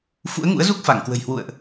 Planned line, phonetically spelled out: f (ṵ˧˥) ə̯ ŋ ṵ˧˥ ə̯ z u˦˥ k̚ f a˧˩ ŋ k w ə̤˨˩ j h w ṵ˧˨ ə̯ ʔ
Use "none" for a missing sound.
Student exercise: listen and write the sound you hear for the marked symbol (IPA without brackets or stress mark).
ṵ˧˥